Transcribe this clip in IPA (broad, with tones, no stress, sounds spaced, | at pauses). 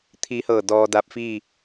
t̪ʰ i˧˥ h ɤː˧˩ d ɔː˧ d a˧ p̚ f i˥˨